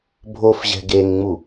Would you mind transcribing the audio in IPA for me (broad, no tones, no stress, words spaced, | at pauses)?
bʱofʑɛ̤ ɡeŋŋ͡mu